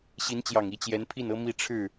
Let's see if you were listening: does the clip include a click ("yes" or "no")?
no